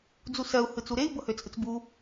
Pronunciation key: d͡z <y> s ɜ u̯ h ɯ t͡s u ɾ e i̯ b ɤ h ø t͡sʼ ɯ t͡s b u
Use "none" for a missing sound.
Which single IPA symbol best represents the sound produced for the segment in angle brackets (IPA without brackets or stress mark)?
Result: u